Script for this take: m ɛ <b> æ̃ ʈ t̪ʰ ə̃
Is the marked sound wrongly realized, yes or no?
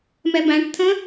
no